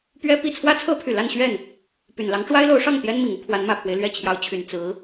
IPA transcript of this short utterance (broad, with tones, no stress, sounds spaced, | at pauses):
p ɥ ɛ˥ p i˥˩ t͡sʰ w ä˥ t͡sʰ ɤ˥ pʰ y˨˩ l a˥˧ n ɕ ɥ ɛ˥˩ n | p y˨˩ n l ɑ˧˥ ŋ ʈ͡ʂ w a˥ ɪ̯ l o˧˥ ʊ̯ ʂ ɑ˥˩ ŋ t̪ j ɛ˥ n m i˨˩ ŋ u˥ pʰ w a˧˥ n m ä˨˩ pʰ w e˦ ɪ̯ l ɥ ɛ˥˩ t͡ɕʰ j ɑ˧˥ ʊ̯ t͡ɕʰ y˨˩ n t͡s ɹ̩˧˥